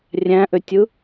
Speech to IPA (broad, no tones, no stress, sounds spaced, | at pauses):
rʲ æ̃ ʔ ø tʲ ɯ